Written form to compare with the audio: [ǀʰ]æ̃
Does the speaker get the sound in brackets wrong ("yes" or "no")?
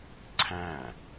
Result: no